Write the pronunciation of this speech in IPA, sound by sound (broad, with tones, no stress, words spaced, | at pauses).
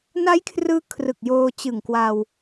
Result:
na˦˥j kʰrɯː˧ kʰrɯ˨˩k̚joː˧ t͡ɕɯ˨˩ŋkwa˧w